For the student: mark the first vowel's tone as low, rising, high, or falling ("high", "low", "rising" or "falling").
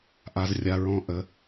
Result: low